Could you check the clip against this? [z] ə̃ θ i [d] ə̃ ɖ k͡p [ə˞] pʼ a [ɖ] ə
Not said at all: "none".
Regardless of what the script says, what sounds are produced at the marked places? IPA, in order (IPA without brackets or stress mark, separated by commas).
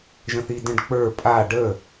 ʒ, d, ə˞, ɖ